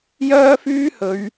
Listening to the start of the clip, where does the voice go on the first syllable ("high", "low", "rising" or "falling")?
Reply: high